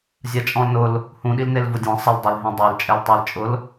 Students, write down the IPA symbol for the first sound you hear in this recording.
zʲ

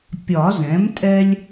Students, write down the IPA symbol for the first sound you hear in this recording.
pʲ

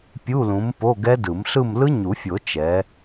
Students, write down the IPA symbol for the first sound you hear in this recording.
pʲ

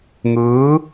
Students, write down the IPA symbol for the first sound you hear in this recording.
ŋ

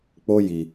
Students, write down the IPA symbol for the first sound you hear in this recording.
k͡p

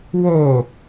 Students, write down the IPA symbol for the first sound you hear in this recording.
w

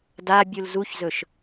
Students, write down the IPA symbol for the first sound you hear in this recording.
d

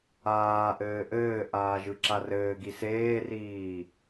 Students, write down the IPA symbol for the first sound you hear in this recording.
aː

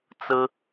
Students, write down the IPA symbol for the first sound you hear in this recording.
t͡s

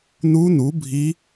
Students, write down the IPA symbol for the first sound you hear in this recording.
n̪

